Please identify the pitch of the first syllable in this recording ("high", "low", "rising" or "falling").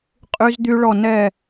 high